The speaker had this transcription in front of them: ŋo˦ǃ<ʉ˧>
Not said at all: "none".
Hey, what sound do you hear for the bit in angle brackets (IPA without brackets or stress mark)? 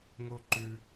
ʉ˧